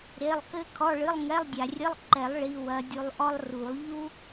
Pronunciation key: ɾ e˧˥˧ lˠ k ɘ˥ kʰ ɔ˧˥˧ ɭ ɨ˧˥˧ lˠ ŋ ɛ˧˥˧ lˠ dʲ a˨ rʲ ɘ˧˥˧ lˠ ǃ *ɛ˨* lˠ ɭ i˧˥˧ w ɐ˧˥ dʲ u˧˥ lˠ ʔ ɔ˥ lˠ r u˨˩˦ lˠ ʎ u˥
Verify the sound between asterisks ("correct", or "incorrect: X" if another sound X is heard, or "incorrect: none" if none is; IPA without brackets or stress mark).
incorrect: ɛ˨˩˦